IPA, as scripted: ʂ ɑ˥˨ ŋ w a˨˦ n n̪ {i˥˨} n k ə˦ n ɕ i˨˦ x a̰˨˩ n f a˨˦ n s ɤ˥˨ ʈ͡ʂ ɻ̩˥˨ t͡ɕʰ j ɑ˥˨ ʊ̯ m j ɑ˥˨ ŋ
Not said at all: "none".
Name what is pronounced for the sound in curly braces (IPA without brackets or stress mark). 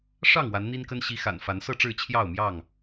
i˦